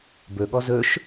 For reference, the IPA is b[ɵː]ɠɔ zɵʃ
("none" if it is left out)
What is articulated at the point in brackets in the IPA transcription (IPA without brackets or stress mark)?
ɵ